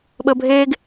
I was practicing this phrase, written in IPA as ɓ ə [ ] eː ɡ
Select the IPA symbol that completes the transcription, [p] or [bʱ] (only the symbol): bʱ